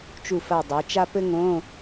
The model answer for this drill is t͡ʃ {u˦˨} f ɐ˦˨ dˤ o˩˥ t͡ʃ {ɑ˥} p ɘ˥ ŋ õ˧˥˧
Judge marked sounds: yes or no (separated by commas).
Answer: yes, no